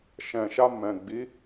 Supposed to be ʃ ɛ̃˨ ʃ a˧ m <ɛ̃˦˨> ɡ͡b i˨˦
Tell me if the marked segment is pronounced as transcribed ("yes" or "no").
no